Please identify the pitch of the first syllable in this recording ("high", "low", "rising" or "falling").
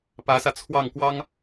rising